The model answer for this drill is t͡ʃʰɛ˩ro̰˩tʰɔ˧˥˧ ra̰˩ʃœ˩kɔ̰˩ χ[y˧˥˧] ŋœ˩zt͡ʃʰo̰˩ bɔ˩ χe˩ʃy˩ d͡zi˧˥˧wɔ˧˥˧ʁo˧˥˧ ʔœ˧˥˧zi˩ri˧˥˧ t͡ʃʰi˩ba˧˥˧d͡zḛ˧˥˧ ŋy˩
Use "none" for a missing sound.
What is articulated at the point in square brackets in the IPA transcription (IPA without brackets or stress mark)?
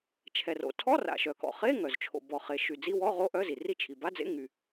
e˧˥˧